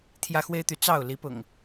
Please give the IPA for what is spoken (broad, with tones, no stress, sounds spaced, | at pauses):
t̪ʰ j ä˦ x w e˦ ɪ̯ t̪ y˨˦ t͡s ɑ˥˨ ʊ̯ l i˨˦ p ʊ̰˨˩ ŋ